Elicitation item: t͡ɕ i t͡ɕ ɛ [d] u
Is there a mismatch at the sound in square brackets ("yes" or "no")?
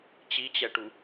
yes